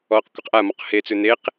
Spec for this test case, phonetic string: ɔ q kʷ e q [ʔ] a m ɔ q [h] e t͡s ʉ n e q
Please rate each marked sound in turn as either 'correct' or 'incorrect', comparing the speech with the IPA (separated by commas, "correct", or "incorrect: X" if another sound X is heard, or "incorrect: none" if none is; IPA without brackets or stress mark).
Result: correct, correct